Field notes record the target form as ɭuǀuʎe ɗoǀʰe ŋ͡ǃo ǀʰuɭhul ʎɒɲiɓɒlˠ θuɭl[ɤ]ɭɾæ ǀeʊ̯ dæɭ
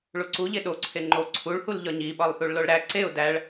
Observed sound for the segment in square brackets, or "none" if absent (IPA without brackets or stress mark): o